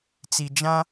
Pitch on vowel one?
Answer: low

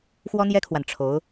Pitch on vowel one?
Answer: high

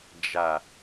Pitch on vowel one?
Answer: low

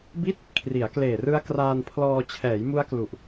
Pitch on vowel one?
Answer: falling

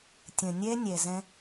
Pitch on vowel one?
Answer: low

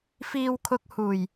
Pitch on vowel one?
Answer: low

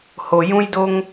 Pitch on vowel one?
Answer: low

